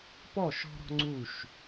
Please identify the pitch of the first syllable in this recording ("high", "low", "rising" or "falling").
falling